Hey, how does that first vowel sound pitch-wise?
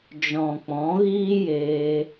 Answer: low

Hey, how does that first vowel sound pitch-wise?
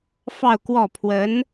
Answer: falling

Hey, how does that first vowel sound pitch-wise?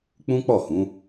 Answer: high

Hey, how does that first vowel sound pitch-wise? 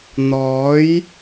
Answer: rising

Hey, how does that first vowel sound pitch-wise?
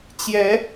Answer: rising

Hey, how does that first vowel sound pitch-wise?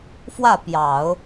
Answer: falling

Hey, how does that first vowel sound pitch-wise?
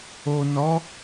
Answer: low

